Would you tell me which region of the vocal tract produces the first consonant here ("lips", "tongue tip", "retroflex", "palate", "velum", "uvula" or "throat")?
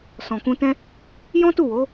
tongue tip